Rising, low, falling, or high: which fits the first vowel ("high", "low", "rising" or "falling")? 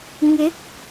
rising